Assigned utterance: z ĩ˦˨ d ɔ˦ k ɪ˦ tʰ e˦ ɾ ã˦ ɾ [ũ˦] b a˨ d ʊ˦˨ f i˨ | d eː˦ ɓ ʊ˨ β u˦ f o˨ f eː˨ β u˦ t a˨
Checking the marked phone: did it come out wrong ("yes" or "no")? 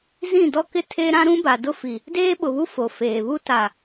no